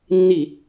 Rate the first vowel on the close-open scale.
close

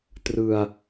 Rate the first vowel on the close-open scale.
close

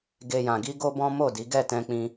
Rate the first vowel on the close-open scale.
mid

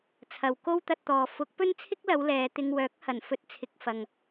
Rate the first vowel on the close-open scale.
open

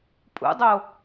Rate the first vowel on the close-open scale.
close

